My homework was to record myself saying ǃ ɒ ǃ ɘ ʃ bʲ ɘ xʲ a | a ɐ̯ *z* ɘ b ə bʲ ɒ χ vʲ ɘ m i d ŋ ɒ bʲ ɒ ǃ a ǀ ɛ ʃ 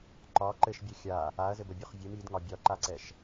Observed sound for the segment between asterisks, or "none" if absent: z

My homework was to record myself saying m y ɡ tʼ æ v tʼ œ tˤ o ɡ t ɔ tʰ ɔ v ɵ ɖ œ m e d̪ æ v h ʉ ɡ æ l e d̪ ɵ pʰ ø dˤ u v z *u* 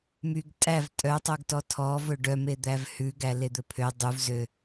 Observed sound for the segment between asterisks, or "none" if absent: ø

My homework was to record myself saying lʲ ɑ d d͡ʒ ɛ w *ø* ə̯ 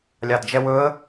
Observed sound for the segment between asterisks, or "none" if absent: ɵ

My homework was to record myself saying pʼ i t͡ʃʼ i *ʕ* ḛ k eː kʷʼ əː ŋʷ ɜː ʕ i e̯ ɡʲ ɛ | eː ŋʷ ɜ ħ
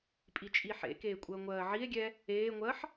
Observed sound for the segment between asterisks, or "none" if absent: ħ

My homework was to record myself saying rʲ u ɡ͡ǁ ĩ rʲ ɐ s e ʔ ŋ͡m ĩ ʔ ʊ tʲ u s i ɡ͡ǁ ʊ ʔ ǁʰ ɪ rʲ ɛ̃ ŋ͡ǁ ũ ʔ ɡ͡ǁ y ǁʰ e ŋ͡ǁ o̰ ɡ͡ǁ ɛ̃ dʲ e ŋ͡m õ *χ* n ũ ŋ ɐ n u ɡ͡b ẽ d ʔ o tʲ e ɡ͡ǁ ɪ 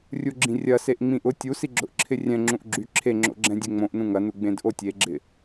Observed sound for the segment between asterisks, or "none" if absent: ʔ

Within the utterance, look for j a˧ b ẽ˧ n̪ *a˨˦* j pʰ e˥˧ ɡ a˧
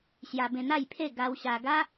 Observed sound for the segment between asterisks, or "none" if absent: a˥˧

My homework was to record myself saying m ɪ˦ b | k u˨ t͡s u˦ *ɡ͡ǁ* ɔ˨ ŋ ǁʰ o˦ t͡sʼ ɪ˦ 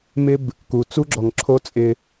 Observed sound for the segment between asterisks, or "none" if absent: ɡ͡ǁ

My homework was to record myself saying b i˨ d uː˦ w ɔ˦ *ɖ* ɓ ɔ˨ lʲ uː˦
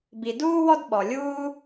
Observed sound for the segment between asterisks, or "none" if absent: d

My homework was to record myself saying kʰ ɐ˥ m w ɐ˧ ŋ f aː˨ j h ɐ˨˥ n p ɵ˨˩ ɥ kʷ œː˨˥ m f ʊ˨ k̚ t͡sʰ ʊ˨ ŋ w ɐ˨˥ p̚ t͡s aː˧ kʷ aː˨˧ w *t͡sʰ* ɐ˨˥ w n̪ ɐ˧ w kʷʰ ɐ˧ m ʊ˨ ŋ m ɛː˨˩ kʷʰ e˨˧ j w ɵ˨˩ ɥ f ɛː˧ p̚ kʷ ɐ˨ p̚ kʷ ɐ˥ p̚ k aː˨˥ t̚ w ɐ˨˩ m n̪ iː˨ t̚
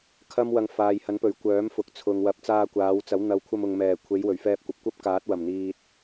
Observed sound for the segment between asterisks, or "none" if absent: t͡s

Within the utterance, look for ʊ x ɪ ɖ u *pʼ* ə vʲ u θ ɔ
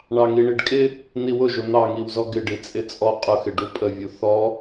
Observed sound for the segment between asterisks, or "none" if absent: pʼ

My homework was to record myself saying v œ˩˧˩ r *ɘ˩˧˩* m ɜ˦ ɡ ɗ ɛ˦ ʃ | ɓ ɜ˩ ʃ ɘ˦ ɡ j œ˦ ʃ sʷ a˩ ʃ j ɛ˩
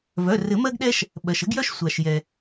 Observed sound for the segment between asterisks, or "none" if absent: ɘ˨˩˦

